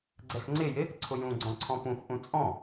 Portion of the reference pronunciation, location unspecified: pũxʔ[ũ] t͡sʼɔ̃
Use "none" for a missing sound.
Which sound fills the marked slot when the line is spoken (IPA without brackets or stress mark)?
ũ